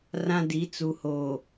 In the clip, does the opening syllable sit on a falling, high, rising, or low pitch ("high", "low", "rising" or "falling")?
high